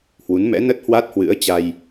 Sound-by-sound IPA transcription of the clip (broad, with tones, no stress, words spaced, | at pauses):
hwu˨˦nmɛ̰˧˥ nə˦˥t̚hwa˦˥t̚hwɨ̰˧˥ə̯ t͡ɕa˧j